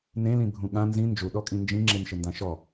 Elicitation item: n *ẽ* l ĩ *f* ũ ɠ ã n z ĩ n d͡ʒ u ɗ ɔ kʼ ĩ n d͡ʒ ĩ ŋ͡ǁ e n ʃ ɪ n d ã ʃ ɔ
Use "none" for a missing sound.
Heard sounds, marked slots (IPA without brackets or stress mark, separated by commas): ẽ, bʱ